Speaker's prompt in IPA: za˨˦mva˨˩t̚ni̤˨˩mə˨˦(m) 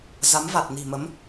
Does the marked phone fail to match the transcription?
no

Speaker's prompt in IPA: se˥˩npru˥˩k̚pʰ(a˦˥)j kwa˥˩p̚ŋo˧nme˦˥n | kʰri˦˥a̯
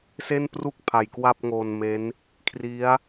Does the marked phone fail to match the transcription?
yes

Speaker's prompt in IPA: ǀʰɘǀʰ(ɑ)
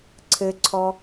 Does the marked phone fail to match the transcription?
yes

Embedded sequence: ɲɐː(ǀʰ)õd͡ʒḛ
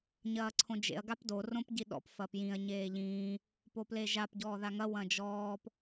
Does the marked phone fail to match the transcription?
no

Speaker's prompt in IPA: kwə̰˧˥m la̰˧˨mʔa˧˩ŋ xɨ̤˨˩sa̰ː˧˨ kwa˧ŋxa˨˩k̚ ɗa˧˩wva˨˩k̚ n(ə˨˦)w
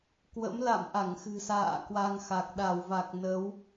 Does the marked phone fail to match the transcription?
no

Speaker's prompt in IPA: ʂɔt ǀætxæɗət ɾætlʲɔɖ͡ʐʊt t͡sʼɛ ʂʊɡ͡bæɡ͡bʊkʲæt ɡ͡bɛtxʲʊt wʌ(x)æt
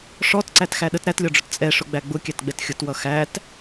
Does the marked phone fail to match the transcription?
no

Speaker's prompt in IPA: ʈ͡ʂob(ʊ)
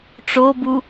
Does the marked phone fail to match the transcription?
yes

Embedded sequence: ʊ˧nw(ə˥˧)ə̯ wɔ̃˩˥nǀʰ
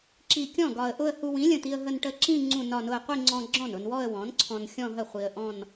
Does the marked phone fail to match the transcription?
yes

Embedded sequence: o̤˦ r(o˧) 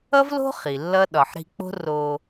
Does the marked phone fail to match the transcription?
no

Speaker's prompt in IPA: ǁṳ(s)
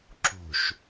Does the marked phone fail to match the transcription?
yes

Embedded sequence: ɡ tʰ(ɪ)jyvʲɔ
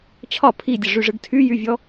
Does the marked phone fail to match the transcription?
yes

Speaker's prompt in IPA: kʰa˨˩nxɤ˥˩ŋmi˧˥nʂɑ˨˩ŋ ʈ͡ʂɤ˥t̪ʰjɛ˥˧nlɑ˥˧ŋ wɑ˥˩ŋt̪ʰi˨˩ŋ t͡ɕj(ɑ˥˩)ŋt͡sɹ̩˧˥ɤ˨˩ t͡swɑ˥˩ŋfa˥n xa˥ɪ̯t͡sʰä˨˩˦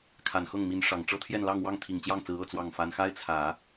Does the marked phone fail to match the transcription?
no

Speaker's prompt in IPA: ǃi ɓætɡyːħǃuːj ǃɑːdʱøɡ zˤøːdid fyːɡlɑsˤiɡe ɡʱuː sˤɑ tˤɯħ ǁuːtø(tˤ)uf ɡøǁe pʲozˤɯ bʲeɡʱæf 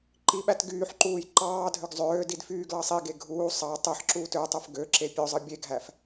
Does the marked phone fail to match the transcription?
no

